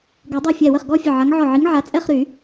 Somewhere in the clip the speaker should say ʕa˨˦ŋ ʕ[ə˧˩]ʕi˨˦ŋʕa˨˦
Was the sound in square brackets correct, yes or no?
no